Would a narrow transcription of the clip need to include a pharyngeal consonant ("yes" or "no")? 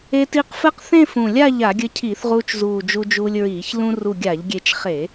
no